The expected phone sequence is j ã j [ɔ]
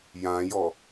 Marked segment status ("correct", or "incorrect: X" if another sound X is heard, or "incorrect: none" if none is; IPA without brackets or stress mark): correct